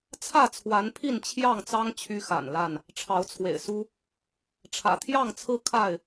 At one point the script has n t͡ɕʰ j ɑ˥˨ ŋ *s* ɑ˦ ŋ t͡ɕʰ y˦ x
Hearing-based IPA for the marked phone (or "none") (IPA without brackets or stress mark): t͡s